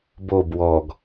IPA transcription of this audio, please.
b o b w ɔ ɡ

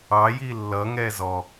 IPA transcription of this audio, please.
ɑ j i lː ʌ ŋ ɛ z ɔ

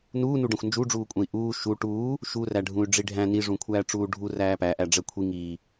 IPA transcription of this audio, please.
n uː n u ɖ ɛ̃ xʷ n d͡ʒ u ɖ͡ʐ uː kʷʼ ɛ̃ i̯ ʔ uː ʃ u ʈ uː | ʃ u r æ ɖʱ ũ y̯ ɖ͡ʐ i ɖʱ æ̃ n i ʐ ũ kʷʰ æː ʈ͡ʂ uː ɖʱ u r æː p æ ʔ æ ɖ͡ʐ ɛ kʷʰ i ŋ iː

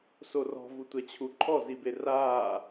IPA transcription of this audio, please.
s o r ɔ̤ v u tʷ ɛ t͡ɕʰ u ǃʰ ɔ z i b e r aː

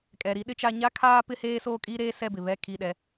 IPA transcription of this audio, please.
kʼ ɛ˨ ɾ i˦ ɗ ɪ˦ t͡ʃ a˦ ɲ a˦ kʰ aː˦ p ɪ˦ h eː˦ s oː˦ kʼ i˦ ɾ eː˦ s ɛ˦˨ b ɪ˨ β ɛ˦˨ kʰ i˦˨ ɗ ɛ˦

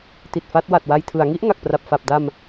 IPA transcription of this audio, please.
t i˨˩ t̚ f a˦˥ t̚ w a˨˩ t̚ w a˧ j tʰ ɯ˩˦ a̯ ŋ i˦˥ ʔ ŋ a˨˩ k̚ p r a˨˩ p̚ f a˨˩ p̚ d a˧ m

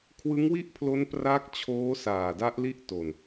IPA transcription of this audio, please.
kʰ w ɯ˦˥ ŋ w i˥˩ ʔ pʰ l o˦˥ n p r aː˦˥ k̚ t͡ɕʰ oː˦˥ s aː˨˩ d a˦˥ ʔ l i˥˩ ʔ t o˨˩ n

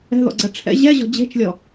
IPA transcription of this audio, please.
ɛ̤ ð ɔ̰ ɡ͡ǀ ɐ ʈ͡ʂʰ ɛ̰ ʑ ɛ ʑ ɔ̤ d͡ʑ e̤ t͡ʃ lʲ ɔ

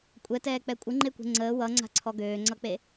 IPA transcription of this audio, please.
kʷʼ ɛ t ɛː k͡p ɛ kʷʼ ə ŋ͡ǃ e kʷ e̤ ŋ͡ǀ əː w ʌ ŋ͡ǀ a̤ ǀʰ ɔ ɡ øː ŋ͡ǀ ʌ k͡p e

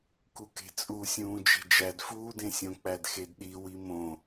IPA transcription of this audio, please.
k u k e̤ t͡sʼ u sʲ ũː d͡ʒ e̤ d͡ʒ æ d f uː d ẽ sʲ õ k͡p æ d x e d ɗ i w i m õ

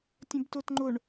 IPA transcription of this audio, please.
tʲ ə̃ b t ʊ t ŋ͡ǃ ʊ ɳ

